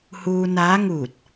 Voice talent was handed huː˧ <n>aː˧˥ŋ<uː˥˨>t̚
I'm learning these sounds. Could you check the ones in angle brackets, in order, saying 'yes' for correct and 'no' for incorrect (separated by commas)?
yes, no